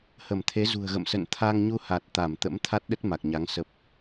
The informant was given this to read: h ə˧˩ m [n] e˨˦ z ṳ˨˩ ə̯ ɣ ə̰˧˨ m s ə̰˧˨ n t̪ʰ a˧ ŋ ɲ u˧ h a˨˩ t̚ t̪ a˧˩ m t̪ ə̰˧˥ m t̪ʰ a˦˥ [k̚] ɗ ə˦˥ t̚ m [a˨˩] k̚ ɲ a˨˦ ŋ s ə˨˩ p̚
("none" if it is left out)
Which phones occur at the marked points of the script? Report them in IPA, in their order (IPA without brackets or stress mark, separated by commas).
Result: t̪ʰ, t̚, a˨˩